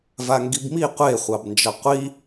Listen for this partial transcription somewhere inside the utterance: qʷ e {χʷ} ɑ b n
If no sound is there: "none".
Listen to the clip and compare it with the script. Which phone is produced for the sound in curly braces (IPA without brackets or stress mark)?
χʷ